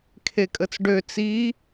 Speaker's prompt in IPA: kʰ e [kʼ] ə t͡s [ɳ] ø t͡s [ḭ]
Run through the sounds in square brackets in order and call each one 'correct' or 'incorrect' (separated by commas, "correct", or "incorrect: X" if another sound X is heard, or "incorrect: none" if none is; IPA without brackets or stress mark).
correct, incorrect: ɖ, incorrect: i